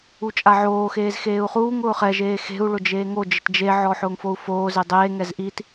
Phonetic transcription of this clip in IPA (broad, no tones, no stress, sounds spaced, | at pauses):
u t͡ʃʼ a ʕ oː x eː z x eː u̯ χ uː ŋ ʊː χ ɛ ʒ eː x e̤ u̯ ɭ ʊ d͡ʒ eː ŋ o d͡ʒ ɪ t d͡ʒ e ʕ ɔ ħ ʊː ŋ f o u̯ f oː z e dˤ eː ŋ ɛ z ʔ i t